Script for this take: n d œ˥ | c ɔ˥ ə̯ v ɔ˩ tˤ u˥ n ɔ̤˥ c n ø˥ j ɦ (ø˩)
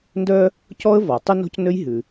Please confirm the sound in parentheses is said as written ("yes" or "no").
no